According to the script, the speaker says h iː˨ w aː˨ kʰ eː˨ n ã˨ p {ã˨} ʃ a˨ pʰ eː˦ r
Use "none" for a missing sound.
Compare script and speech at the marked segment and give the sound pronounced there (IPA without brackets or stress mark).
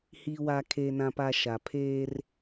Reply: a˨